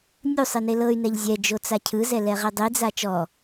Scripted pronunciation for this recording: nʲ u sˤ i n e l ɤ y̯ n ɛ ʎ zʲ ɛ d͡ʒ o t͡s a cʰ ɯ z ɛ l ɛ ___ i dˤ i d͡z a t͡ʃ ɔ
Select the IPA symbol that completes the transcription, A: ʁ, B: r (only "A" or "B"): A